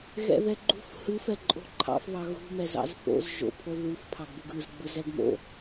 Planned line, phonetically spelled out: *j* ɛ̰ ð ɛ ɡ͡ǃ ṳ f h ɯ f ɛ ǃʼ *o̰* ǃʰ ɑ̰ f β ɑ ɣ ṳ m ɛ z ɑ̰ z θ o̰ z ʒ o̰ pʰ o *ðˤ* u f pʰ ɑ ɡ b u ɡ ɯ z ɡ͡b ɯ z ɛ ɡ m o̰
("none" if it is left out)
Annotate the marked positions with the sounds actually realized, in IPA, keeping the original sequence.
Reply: ɣ, o̤, ð

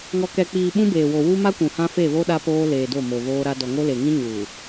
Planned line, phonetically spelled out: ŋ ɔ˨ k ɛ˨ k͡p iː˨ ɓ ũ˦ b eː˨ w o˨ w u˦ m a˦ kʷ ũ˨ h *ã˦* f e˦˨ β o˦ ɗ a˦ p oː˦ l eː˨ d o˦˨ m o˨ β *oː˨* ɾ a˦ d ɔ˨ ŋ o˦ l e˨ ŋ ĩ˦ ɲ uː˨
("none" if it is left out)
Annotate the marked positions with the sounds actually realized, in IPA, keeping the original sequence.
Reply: ã˦, oː˦

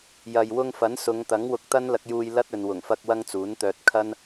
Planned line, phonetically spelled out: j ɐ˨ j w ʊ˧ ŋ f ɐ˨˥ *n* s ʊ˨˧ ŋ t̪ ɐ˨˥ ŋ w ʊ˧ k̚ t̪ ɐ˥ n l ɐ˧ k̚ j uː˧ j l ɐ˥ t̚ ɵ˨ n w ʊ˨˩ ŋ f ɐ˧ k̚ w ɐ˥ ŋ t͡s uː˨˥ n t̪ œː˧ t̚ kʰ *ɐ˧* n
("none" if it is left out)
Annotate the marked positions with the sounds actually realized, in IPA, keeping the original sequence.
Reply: n, ɐ˥

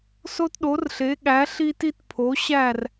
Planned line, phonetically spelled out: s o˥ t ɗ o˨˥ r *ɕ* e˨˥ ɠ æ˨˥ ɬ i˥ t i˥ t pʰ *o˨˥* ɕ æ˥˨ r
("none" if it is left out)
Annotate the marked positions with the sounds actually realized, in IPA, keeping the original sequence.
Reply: ɬ, o˨˥

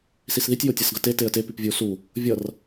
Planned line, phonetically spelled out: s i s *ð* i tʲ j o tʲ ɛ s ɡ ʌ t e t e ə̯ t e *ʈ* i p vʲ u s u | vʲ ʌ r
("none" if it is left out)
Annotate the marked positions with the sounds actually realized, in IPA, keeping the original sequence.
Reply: ð, p

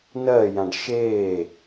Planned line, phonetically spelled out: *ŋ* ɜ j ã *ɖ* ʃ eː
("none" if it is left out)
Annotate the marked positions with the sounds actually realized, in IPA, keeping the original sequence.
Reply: n, ɖ

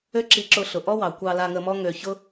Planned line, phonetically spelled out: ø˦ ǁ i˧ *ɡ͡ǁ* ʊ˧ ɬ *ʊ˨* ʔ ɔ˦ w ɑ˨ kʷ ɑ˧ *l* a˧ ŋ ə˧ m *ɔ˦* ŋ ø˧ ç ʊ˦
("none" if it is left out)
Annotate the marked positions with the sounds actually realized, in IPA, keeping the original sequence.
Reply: ǁ, ʊ˨, l, ɔ˦

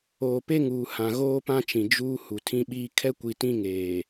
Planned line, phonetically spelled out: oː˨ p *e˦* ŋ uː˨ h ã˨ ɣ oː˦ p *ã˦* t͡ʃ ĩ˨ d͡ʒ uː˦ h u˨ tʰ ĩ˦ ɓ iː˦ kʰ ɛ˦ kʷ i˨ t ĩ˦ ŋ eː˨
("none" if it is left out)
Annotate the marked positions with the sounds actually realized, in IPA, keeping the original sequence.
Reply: e˦, ã˦

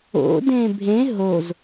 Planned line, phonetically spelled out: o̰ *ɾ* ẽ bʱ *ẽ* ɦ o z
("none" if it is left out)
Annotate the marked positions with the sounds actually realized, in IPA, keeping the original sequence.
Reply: d, ẽ

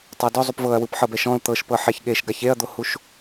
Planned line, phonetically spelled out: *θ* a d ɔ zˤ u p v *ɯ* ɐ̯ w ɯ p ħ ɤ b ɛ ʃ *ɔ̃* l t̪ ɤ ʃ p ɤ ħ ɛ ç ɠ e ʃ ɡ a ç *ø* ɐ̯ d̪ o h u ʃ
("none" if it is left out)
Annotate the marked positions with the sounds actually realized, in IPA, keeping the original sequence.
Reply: tˤ, ɤ, ɔ̃, e

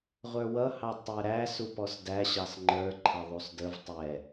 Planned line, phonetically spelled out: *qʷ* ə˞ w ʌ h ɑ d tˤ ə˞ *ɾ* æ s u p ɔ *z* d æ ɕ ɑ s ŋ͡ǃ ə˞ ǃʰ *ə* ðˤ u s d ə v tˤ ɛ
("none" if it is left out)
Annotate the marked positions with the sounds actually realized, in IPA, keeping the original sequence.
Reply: ʁʷ, ɾ, s, ʌ

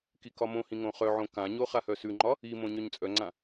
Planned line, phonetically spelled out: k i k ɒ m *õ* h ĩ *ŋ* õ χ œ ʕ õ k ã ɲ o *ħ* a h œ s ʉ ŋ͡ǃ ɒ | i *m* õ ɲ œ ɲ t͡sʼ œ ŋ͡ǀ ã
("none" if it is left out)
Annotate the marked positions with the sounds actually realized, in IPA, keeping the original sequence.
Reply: õ, ŋ, χ, m

